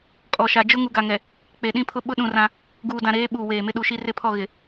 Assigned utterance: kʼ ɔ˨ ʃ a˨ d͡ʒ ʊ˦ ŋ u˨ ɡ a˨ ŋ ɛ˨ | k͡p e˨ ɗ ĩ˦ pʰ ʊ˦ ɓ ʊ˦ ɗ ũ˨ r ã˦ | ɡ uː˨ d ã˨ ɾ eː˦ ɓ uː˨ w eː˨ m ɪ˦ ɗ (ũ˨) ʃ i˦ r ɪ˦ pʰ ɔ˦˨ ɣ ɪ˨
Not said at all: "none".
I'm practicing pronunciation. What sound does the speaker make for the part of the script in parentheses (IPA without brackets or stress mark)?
u˨